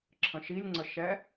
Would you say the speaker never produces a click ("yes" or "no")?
no